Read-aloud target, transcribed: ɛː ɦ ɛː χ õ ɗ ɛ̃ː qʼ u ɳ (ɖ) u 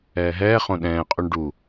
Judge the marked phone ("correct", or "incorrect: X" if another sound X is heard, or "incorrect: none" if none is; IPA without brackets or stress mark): correct